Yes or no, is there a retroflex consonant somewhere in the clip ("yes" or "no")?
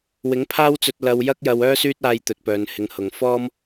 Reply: no